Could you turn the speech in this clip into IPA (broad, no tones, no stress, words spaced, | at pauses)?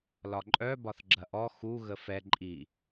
lɒǃʼœ bɒθɡ͡ǁɐʔɔ xu ɣəfɛ ǃʼi